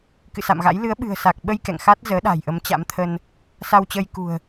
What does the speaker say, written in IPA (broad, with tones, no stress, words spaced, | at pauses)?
kɨ̰˧˨sa̰˧˨mɣa̰˧˥j lɨ˨˦ə̯ɓɨ̤˨˩ə̯sa˨˩k̚ ɓə˧j kɛ̰˧˨ŋxa˦˥t̚ zəː˨˦ɗa̤˨˩j ʔə˨˦mt͡ɕa̰˧˥mt̪ʰə˧n | sa˧wt͡ɕə˧jkṳ˨˩ə̯